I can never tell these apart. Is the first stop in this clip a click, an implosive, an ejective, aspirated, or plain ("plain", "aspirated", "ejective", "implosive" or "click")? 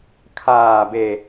aspirated